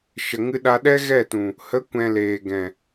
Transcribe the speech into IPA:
ʃ ə˨ ŋ ɨ˧ ɗ a˧ ɗ ɛ˦ ɣ ɛ˦˨ t ũ˨ | h ə˨˦ kʷ ɛ̃˨ l eː˨ ɡ ɛ̃˨

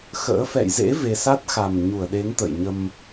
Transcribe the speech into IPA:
x ə̰ː˧˥ f ɛ̰˧˨ j z ḛ˧˥ v e˧ s a˦˥ t̚ x a˨˩ m ɲ u˧˩ ə̯ ɗ e˨˦ ŋ t̪ ə̰ː˧˨ j ɲ ə˧ m

